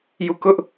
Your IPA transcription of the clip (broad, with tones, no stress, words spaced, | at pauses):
ju˦˨ kʊ˦ʔ